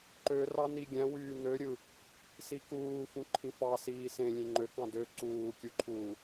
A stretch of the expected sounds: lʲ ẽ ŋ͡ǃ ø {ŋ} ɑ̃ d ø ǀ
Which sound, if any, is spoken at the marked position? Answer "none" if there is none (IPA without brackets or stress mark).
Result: k